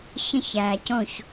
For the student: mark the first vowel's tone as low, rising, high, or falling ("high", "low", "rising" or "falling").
falling